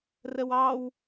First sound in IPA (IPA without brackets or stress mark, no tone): r